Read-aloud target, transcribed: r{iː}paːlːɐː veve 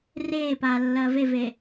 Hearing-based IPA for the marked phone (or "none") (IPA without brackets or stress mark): eː